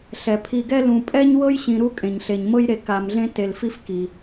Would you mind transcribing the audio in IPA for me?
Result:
ɬ ɛ˩ pʰ i˨ ɡ ɛ˥ l ũ˨ pʼ ɛ˥ ɲ w ɤ˥ j ɕ ĩ˨ ɾ u˦ kʼ ẽ˩ ɲ ɬ e˩ ɲ m ɤ˦ j ɾ e˨ k a˨ m ɮ ẽ˦ t e˨ l f i˦ f k i˩

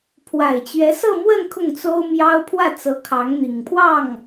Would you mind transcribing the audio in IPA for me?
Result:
pʰ w a˨˩ ɪ̯ t͡ɕ ɥ ɛ˧˥ s ɤ˥˧ m w ə˥˧ n kʰ ʊ˥˩ ŋ t͡s o˥ ʊ̯ m j ɑ˥ ʊ̯ pʰ w ä˥˩ t͡s ɤ˧˥ kʰ ɑ˧˥ ŋ n̪ i˨˩ ŋ pʰ w ɑ˥˩ ŋ

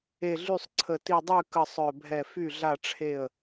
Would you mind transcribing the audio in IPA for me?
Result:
e˧˩ ɮ y˥˩ sˤ ǀʰ ə˧˩ t i˧˩ dˤ y˥˩ k ə˥˩ sˤ œ˧˩ bʱ ɛ˧˩ f y˥˩ ɮ a˥˩ ʈ͡ʂʰ e˥˩ ə̯

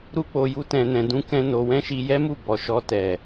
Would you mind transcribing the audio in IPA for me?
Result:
ɾ u˦ k͡p o˧ j u˦ t ɛ̃˧ n ɛ̃˧ d ũ˦ k ɛ̃˦ n o˧ w ɛ̃˦ ʃ i˧ j ɛ˦ m u˦˨ b ɔ˨ ʃ ɔ˧ t ɛ˨

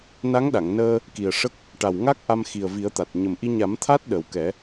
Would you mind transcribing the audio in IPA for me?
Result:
n a˧˥ ŋ ɗ a˨˩˨ ŋ n əː˧ | k i˨˩ ə̯ ʂ ə˦˥ k̚ | ʈ a˨˩ w ŋ a˦˥ k̚ ʔ a˧ m x i˨˩ ə̯ v i˨˩˦ ə̯ t̪ a˨˩ t̚ ɲ ə˨˩ m ʔ i˧ ɲ a˨˩˦ m t̪ʰ a˦˥ t̚ ɗ ə˨˩ w k ɛ˨˩˦

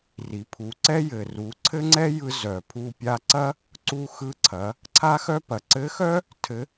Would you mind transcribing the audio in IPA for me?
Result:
r i˩˧ pʰ u˩˧ ǀ ɛ˥ j ɘ˩ r u˩˧ ǀʰ ɘ˥ ŋ͡ǀ ɛ˥ j ɯ˧ z œ˩ pʰ u˧ pʲ a˧ ǀ ɐ˥ | ǀ u˧ x ɯ˧ ǀʰ ɐ˩˧ | ǀʰ a˥ x œ˥ p ɐ˩ ǀ ɘ˧˥ x œ˥ | tʰ ɘ˧˥

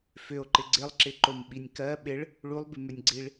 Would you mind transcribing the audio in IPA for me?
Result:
f ʏ o̯ ǃ ɪ ɡ͡ǀ ɪ lˠ ǁ ɪ ǃ o m ɓ i nʲ k ɜ ɓ ɪ ɭ | ɭ u lˠ b ɪ m ʏ nʲ ɡ͡ǀ i ɭ

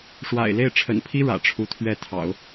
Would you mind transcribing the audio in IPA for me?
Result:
ʂ w a̰˨˩ ɪ̯ l e˥˩ ɪ̯ ʈ͡ʂʰ ə̰˨˩ n pʰ i˥ ɻ ä̰˨˩ ʈ͡ʂʰ u˥ t̪ʰ ɥ ɛ˥˩ t̪ʰ ɑ̰˨˩˦ ʊ̯

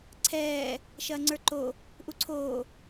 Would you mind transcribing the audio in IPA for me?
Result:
ǀʰ ɛː | ʃ ɐː ŋ͡ǀ ə˞ ǃ o | ʔ u ǀʰ oː

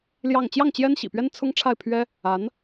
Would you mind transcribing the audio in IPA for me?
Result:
l j ɑ˥˧ ŋ t͡ɕ j ɑ˥˩ ŋ t͡ɕ j ɛ˥ n ɕ ḭ˨˩ p ɥ ɛ˥ n t͡sʰ ʊ˥ ŋ ʈ͡ʂʰ a˥˩ ɪ̯ pʰ ɥ ɛ˥ | a˧˥ n

